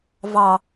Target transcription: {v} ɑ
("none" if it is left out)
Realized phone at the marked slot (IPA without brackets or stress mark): v